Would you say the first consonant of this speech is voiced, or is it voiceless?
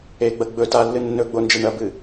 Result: voiced